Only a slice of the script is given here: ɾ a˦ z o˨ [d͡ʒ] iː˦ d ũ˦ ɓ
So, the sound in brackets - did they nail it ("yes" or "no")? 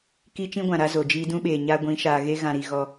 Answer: yes